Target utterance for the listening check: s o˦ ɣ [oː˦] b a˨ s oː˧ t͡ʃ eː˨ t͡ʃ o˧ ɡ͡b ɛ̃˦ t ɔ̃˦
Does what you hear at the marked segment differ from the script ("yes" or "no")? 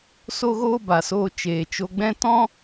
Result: no